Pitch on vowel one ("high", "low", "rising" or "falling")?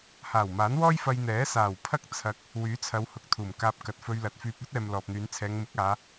low